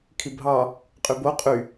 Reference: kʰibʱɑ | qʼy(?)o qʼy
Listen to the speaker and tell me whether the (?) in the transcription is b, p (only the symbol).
b